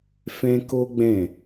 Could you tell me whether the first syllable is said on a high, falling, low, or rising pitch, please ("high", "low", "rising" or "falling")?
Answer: high